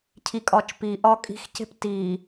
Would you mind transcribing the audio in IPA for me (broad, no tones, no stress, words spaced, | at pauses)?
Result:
cʰikʼɒːt͡ʃ piʔɒː kʼi̤xce̤p tiː